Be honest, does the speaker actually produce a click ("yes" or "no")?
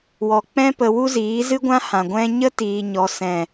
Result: no